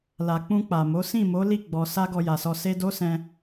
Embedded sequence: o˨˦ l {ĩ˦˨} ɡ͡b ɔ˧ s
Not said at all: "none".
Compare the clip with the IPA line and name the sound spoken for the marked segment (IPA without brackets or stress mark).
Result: i˦˨